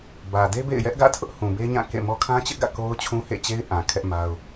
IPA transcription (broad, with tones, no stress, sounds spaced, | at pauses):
b ä˨ d e˦ b ḛ˦˨ ɪ̯ j ɛ˦ ʔ ɡ ä̰˦˨ tʰ ʊ˦ ʔ h ũ˨ b e˦ ɲ ã˦˨ k ḛ˦˨ m ɔ˦ kʰ ã˦ t͡ɕ ɪ˦ ʔ ɡ ä̰˦˨ k o˦ ʊ̯ t͡ɕʰ ũ˦ h ḛ˦˨ t͡ɕ e˦ ɪ̯ ʔ ã˨ kʰ ɛ˦ ʔ m a˦ ʊ̯